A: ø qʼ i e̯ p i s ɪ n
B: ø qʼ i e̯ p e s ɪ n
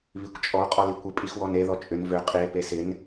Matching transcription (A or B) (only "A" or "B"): B